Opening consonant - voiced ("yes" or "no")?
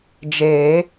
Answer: yes